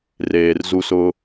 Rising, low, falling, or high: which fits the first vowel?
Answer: low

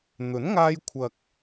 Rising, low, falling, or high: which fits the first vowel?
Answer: rising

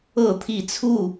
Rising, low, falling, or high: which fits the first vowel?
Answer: falling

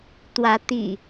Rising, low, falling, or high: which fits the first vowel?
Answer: rising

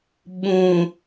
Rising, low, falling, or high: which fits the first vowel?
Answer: low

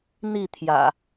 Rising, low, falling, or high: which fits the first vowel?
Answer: falling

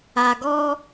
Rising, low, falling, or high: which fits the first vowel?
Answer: low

